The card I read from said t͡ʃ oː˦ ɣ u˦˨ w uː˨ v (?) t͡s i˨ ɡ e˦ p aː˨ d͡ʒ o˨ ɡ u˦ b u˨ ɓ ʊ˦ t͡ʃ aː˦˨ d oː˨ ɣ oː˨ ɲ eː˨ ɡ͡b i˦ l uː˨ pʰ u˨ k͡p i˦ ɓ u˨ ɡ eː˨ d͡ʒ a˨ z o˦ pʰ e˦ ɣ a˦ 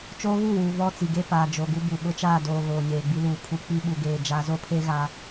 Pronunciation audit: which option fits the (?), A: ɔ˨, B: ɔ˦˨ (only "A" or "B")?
B